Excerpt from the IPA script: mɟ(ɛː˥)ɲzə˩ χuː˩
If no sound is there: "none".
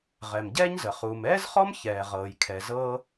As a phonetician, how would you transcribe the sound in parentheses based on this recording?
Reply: ɛː˥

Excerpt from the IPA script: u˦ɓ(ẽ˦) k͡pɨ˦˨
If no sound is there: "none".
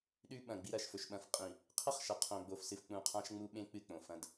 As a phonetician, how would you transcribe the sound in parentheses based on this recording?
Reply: ẽ˦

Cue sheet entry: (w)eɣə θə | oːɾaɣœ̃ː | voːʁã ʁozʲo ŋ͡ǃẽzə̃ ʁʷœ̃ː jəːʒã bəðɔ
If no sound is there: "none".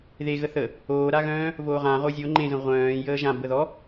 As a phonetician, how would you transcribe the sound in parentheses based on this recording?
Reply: ð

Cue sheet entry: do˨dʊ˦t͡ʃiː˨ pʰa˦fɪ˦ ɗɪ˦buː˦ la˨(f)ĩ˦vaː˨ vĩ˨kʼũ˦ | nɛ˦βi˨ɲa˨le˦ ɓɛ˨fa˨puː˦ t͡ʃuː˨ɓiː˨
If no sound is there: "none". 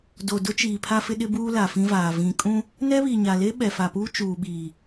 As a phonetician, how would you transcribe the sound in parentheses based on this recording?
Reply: f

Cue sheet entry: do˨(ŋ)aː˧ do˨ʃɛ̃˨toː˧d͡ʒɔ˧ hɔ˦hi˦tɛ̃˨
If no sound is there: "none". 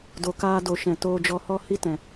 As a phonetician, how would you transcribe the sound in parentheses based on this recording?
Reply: k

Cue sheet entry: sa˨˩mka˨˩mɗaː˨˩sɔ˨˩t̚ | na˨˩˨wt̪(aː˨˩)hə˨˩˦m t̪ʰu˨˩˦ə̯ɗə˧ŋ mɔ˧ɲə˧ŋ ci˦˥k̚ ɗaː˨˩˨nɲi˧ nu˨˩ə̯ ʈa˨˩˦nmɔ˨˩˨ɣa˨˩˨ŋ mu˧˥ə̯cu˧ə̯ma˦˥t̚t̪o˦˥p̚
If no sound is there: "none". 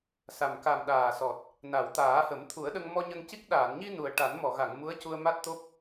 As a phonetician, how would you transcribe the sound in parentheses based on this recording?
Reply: aː˨˩˦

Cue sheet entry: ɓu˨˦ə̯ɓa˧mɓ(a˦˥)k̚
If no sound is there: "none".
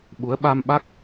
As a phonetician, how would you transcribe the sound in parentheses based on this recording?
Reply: a˦˥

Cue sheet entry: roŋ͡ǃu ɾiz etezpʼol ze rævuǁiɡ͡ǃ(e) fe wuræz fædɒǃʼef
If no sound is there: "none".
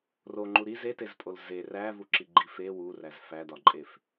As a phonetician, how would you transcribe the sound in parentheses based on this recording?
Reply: i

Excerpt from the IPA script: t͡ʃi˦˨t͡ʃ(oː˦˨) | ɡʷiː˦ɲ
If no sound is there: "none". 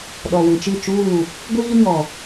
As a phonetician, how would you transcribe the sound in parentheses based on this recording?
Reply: uː˦˨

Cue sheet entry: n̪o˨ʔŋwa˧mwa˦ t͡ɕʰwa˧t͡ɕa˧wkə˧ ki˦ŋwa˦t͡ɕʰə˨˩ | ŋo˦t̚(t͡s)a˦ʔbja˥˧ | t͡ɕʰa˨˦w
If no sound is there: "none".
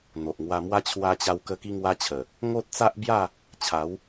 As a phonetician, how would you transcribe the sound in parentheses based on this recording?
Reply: t͡s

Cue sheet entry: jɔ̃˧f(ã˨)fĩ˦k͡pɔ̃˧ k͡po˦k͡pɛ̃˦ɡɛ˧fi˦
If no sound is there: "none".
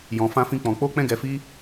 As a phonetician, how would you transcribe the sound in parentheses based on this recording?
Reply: ã˦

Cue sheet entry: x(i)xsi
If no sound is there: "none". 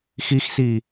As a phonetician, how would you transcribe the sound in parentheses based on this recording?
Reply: i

